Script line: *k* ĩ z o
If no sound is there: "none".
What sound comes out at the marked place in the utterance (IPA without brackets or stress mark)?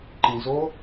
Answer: ǃ